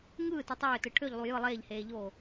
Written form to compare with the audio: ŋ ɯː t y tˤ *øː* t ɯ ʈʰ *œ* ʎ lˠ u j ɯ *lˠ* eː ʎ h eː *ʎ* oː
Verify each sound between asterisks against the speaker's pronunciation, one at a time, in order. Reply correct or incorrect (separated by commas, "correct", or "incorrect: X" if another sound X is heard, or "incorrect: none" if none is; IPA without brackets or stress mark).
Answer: correct, incorrect: ø, correct, correct